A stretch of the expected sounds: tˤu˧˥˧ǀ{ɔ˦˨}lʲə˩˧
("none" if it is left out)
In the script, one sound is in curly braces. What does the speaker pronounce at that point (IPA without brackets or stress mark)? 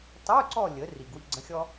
ɔ˦˨